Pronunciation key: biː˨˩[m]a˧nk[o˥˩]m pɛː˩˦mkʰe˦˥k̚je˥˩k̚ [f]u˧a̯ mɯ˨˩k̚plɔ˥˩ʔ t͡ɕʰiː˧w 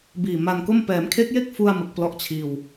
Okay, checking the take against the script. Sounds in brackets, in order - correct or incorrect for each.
correct, correct, correct

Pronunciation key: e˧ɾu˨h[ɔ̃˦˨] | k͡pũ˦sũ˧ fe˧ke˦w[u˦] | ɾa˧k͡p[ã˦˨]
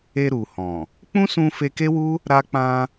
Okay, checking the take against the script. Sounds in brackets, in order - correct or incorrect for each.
incorrect, correct, incorrect

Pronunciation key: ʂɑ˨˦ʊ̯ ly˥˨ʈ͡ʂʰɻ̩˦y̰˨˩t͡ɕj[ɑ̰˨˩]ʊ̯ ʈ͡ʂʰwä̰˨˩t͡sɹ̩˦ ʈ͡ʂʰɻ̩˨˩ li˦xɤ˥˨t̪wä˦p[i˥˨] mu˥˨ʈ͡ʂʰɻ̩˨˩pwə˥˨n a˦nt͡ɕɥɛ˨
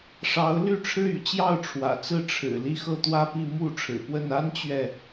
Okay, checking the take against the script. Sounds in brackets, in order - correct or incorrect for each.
incorrect, correct

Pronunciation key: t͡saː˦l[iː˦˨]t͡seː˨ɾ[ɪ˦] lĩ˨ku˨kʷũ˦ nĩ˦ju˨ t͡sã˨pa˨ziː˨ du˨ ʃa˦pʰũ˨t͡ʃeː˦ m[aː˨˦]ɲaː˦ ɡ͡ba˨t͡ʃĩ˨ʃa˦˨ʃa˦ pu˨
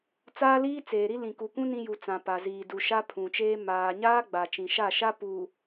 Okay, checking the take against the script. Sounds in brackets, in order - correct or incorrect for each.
incorrect, incorrect, incorrect

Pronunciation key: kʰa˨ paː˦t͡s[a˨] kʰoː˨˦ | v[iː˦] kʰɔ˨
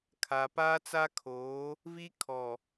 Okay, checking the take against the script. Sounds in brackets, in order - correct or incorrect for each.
incorrect, incorrect

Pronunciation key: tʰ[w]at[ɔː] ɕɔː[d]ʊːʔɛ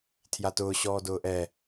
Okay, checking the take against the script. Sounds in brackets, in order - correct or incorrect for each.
incorrect, incorrect, correct

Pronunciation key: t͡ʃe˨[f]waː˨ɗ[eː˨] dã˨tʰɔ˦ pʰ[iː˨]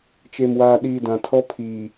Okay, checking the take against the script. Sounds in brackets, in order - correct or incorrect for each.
incorrect, incorrect, correct

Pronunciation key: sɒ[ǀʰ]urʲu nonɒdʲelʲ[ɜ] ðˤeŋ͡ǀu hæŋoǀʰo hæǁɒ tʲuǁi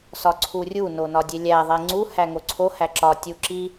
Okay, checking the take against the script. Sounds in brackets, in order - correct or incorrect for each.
correct, incorrect

